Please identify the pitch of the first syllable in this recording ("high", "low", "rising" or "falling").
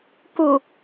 low